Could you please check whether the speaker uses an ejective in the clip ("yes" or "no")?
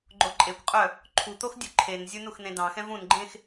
yes